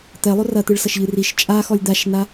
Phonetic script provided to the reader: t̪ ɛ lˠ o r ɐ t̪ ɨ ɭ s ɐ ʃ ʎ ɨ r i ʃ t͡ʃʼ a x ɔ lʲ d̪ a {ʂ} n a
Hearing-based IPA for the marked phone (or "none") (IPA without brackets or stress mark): ʃ